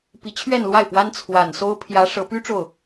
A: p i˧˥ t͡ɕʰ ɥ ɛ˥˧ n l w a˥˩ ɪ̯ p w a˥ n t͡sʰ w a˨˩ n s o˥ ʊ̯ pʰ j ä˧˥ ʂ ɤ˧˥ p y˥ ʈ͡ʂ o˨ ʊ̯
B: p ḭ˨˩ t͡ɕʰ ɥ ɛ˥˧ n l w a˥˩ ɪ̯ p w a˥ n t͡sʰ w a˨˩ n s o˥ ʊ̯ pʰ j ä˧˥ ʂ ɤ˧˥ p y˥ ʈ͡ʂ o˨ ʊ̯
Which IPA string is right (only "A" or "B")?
A